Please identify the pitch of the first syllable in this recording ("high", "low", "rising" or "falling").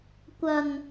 low